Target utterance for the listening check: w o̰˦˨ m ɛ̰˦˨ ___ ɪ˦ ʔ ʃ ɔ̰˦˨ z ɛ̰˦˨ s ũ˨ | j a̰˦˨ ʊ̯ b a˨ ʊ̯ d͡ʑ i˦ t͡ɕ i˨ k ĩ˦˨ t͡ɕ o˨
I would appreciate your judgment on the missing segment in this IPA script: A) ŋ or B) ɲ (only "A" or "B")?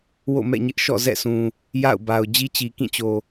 B